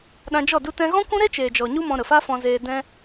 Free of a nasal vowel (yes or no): no